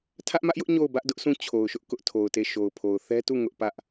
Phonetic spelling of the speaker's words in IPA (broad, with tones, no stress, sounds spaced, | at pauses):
tʰ ä˦ ʔ m ä˦ ʔ j ʊ˦ ʔ ɲ o˦˨ ʊ̯ b ä˦ ʔ d ʊ˦ ʔ s ũ˦˨ t͡ɕʰ o˨ ʊ̯ ʃ ʊ˦ ʔ k ʊ˦ ʔ tʰ o˨ ʊ̯ t e˦˨ ʃ o˨ ʊ̯ pʰ o˨ ʊ̯ θ ɛ˦ t u˦˨ ŋ ʊ˦ ʔ p ä˦ ʔ